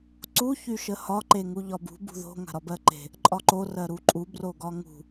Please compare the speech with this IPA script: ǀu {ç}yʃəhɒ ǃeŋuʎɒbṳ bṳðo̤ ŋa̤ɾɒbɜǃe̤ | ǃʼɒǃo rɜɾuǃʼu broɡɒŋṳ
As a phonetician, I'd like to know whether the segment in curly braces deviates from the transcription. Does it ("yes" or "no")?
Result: no